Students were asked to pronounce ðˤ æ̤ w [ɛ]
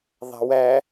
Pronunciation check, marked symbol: incorrect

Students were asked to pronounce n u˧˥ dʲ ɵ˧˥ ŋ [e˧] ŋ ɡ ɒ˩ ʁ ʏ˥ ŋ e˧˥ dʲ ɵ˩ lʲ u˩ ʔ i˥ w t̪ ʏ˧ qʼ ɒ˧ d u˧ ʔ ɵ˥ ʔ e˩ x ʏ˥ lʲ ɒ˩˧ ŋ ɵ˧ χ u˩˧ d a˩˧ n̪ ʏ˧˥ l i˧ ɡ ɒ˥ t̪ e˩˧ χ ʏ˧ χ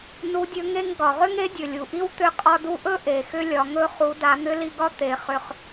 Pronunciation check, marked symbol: correct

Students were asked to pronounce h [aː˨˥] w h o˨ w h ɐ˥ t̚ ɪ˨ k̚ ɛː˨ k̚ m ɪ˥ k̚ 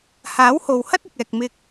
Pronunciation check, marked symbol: correct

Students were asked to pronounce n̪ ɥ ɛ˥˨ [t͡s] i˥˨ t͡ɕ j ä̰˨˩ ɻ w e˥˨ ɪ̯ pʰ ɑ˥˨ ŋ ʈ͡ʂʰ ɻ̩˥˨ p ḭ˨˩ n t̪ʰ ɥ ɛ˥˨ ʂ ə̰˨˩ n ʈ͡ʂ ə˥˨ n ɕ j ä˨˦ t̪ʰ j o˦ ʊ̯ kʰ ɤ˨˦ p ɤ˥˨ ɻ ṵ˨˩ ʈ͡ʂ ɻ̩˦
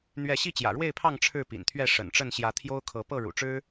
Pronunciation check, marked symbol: incorrect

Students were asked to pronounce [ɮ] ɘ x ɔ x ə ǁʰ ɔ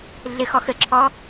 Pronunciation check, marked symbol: correct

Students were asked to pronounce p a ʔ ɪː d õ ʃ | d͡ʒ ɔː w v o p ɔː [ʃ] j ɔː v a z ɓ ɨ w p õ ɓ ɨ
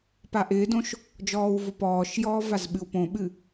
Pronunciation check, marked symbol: correct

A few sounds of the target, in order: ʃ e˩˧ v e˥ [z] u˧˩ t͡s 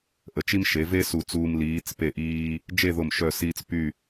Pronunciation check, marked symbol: incorrect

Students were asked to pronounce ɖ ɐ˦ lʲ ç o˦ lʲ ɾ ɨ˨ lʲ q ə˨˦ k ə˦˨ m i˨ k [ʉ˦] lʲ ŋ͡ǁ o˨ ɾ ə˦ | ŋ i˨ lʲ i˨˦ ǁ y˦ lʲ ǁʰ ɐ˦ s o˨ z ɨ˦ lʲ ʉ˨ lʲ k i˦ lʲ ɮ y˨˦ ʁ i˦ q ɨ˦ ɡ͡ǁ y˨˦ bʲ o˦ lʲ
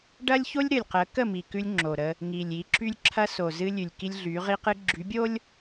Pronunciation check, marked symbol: correct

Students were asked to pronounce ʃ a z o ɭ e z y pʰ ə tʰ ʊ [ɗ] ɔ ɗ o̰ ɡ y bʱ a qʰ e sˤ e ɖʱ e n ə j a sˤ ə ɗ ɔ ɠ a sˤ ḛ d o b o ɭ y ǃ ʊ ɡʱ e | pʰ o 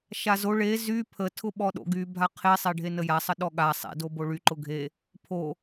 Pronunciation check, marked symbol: incorrect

